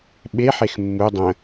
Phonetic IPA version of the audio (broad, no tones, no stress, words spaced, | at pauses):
ɓe ħexmːu dˤə̃